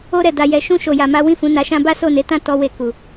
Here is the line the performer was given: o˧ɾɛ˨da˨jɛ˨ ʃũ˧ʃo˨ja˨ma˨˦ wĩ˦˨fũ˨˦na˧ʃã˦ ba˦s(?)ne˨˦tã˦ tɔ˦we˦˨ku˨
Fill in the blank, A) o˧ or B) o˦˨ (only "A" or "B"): B